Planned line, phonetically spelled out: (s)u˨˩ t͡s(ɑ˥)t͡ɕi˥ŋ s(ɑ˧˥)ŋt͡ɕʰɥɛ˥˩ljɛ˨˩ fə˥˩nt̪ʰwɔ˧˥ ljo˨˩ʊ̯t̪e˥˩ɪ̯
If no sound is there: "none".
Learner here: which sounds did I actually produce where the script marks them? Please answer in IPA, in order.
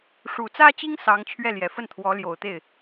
ʂ, ä˥, ɑ˧˥

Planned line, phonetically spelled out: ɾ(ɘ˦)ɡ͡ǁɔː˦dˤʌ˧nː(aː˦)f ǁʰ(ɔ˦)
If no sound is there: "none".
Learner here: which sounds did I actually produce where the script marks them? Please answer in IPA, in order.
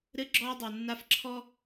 ɘ˦, a˦, ɔ˦

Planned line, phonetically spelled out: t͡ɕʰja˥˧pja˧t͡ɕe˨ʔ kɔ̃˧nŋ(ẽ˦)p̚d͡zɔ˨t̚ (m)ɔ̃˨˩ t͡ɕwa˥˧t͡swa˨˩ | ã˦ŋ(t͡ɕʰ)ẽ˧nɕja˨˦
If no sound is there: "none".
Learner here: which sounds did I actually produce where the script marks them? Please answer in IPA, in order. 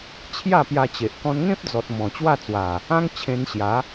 ẽ˦, m, t͡ɕʰ

